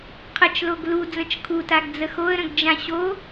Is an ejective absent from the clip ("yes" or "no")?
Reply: yes